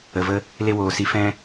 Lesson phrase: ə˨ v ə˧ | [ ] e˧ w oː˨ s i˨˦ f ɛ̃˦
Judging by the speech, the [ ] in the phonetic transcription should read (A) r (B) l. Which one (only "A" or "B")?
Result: B